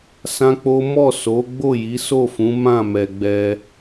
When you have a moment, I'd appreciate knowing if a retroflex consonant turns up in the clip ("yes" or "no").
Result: no